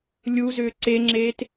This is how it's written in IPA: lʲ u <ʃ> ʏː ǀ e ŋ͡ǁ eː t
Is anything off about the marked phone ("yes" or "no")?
yes